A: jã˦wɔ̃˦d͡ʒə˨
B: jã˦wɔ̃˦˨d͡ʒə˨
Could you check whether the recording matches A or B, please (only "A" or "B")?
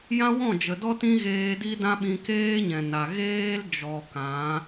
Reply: B